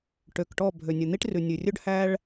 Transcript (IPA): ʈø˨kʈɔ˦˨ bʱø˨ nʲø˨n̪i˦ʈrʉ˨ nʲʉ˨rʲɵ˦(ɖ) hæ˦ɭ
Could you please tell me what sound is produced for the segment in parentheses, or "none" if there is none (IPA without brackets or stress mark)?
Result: ɖ